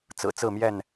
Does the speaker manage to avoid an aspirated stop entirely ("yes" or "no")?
yes